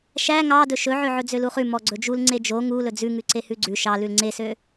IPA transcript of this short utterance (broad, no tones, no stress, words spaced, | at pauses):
ʃæ ŋɑdɵ ʃɵʕøʕɵ d͡zøluχʉ mɔɡ͡ǀɵd͡ʒul ŋ͡ǀed͡ʒo ŋulɵ d͡zʉŋʉ ǀehʉɡ͡ǀʉ ʃɑ lʉlŋ͡ǀesø